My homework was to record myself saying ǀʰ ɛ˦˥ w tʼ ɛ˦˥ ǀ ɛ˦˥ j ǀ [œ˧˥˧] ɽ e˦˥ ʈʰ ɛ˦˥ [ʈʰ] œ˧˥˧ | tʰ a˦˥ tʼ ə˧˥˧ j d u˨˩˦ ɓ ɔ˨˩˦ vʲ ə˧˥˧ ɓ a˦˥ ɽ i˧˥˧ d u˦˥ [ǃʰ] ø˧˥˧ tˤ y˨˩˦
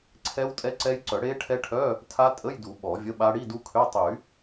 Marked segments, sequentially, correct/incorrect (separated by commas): incorrect, correct, incorrect